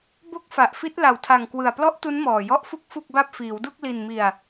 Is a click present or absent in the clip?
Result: absent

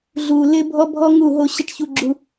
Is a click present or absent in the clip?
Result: present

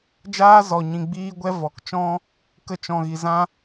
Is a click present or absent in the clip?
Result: absent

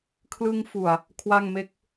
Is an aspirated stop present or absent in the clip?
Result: present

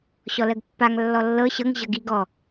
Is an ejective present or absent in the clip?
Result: absent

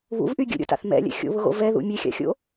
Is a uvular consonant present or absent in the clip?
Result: absent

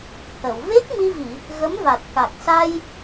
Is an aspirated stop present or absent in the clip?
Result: absent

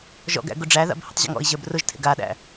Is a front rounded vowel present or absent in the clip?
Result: absent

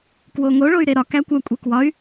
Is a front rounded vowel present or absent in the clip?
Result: present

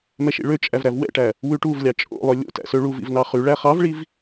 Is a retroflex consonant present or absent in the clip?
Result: present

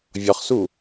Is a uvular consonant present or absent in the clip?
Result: present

